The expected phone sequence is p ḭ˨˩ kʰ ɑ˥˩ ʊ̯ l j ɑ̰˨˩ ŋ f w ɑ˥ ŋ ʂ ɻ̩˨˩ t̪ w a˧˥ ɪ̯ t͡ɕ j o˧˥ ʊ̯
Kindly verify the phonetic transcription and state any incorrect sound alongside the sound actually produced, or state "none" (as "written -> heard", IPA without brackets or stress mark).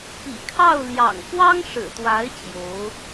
none